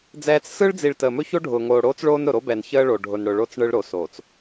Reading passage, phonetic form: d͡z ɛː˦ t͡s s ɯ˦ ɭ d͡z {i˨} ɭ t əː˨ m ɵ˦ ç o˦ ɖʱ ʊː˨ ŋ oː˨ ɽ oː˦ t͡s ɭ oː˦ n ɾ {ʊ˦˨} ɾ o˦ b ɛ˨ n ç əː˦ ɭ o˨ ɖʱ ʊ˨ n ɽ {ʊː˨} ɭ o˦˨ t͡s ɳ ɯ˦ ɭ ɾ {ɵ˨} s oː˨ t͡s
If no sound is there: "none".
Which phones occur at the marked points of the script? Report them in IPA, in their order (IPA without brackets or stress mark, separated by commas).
i˨, ʊ˨, ʊ˨, o˨